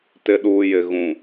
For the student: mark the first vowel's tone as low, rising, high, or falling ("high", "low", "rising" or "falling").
low